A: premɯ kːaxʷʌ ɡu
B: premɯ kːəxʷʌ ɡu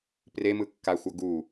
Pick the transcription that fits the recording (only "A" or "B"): A